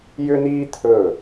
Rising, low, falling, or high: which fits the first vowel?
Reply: high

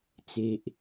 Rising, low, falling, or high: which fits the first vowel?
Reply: low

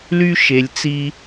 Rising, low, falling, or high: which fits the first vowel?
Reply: high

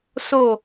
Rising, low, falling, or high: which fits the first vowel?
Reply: falling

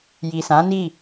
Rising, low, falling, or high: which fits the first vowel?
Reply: low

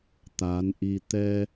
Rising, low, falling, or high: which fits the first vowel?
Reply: rising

